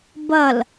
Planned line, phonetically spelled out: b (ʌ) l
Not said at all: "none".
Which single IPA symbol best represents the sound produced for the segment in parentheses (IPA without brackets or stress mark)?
ʌ